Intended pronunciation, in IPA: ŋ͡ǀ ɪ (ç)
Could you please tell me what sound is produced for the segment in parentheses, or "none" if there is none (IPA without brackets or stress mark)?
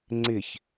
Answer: ç